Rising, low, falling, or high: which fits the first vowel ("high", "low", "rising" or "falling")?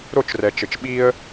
falling